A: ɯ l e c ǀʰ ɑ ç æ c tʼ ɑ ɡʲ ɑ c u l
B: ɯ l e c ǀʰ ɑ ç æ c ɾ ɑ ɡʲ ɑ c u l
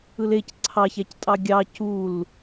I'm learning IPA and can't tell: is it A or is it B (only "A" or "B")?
A